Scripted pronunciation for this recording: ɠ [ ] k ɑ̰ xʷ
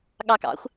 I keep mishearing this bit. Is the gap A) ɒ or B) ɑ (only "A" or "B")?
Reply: B